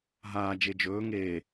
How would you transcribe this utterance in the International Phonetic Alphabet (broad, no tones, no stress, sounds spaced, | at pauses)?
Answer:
ɦ aː d͡ʒ e d͡ʒ ɵː ŋ eː